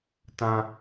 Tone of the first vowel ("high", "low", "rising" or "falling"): high